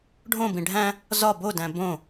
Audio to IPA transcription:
ɖʱ õ b ĩ ɖʱ æ̃ | z ɒ b o d æ̃ b õ

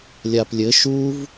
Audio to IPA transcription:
lʲ a p lʲ ɘ ʃ u v

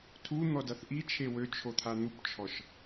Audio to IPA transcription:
tʰ u n̪ ɔ d a θ ʔ i t͡ʃʰ e w ø t͡ʃʰ o t̪ʰ a n̪ u p t͡ʃʰ ɔ ʃ

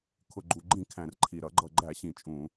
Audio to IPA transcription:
kʰ ʊ˨˩ ɡ͡ǃ u˨˩ ɡ͡ǃ ĩ˧˩˧ kʰ æ̃˨˩ r ǃʰ i˨˩ ɾ ʌ˧˩˧ ɡ͡ǃ ʌ˨˩ ɡ͡ǃ æ˧˩˧ ɕ ĩ˨˩ t͡ʃʼ ũ˧˩˧

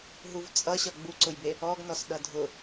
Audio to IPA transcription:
ɦ u v t͡sʼ ʌ ɕ ʌ ɡ͡b u ǀ ʊ j b e | ɔ ɡ n ɔ s ɗ ʌ dʱ ʊ

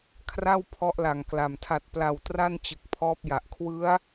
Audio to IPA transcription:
kʰ r a˥˩ w pʰ ɔ˦˥ ʔ l a˨˩ ŋ k l a˨˩ m tʰ a˨˩ t̚ p l a˨˩ w t r a˥˩ n t͡ɕ ɯ˨˩ k̚ pʰ ɔː˦˥ p̚ j a˨˩ ʔ kʰ w ɯ˦˥ a̯

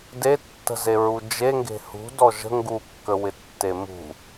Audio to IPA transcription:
d e tː ə̤ z e ɹ u d͡ʒ e ŋ ɡ e̤ h ṳ d ɔ ʒ ə̤ ŋ ɡ u kː ə w ɪ tː e m ṳ

